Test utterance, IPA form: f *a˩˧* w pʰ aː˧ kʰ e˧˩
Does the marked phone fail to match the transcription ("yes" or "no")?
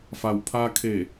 yes